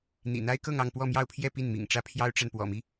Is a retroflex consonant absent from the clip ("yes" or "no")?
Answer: no